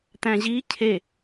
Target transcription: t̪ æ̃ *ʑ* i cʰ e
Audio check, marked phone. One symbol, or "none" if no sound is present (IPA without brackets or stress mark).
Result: ʑ